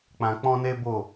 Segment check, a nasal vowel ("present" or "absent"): present